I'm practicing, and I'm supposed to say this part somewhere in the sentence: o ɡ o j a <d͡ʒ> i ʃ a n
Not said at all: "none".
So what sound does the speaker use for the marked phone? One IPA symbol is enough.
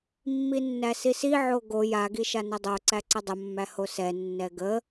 ɡ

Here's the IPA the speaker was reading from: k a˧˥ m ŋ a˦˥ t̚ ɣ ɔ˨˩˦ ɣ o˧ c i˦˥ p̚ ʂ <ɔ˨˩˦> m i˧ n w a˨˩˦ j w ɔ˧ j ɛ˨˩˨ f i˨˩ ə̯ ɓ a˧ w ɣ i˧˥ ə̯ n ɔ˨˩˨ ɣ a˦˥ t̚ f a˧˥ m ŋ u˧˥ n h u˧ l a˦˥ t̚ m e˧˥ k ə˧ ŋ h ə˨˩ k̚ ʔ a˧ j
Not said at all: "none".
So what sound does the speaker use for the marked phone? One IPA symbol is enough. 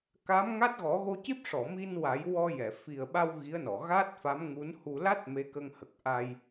ɔ˨˩˨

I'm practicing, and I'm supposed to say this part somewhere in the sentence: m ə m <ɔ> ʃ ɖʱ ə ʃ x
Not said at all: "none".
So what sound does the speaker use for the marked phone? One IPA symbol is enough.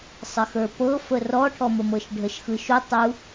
ɤ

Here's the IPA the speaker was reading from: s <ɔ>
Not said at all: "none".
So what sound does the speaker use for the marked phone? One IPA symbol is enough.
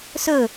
ɵ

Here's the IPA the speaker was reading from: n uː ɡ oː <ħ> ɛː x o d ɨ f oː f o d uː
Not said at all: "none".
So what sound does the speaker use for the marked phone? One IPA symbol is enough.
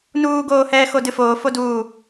h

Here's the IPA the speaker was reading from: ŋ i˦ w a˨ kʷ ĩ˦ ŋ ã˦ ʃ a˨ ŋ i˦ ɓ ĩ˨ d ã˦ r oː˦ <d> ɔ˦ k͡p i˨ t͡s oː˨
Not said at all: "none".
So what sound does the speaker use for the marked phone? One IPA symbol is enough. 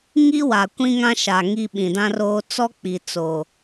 t͡s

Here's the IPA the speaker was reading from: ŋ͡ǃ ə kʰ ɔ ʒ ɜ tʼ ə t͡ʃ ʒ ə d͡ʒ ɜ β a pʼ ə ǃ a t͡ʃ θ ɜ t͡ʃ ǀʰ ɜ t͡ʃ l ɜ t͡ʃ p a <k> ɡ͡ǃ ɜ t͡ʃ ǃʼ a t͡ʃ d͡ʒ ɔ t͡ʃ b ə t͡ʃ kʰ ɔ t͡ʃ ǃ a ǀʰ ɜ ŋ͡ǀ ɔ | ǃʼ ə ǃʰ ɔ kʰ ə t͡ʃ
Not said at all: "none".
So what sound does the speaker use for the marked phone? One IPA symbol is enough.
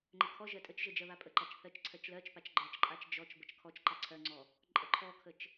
t͡ʃ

